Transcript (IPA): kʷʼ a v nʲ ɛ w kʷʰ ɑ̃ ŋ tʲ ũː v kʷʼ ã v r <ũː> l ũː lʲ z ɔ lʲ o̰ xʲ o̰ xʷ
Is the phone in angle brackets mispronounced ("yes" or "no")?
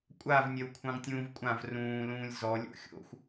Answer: no